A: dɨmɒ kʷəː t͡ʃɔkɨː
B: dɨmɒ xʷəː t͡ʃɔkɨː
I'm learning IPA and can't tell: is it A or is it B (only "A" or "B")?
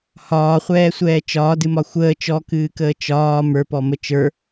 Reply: B